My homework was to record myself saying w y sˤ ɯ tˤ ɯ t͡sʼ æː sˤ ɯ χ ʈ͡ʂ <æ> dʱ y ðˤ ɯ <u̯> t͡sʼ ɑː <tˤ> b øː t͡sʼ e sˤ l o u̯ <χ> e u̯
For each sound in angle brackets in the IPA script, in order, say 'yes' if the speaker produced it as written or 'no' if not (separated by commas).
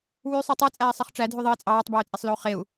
yes, no, yes, yes